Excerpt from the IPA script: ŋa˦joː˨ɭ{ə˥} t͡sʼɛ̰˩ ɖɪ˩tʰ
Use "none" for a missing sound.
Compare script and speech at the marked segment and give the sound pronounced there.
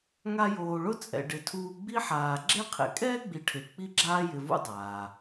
ʊ˥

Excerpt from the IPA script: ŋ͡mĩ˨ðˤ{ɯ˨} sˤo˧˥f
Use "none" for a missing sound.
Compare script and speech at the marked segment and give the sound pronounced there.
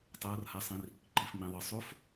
ɯ˨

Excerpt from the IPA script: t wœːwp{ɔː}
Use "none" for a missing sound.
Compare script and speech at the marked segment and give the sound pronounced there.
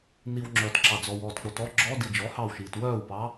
ɑː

